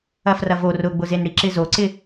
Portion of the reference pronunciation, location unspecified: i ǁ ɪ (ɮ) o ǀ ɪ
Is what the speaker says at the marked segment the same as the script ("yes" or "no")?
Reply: no